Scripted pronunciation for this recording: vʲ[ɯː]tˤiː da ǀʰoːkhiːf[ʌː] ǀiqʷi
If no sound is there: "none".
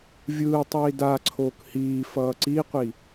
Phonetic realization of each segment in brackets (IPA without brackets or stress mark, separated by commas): ɯː, ʌː